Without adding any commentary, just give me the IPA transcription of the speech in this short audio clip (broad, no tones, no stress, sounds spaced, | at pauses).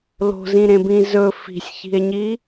l o̤ z ĩ ɾ ẽ b ĩ z ɵ f i̤ sʲ ç i̤ e̯ ɲ i